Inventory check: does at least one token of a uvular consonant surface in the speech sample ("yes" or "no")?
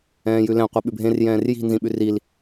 yes